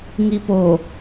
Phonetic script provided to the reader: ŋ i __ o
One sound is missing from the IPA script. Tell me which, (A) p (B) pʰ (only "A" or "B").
A